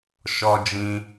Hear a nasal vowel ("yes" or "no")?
yes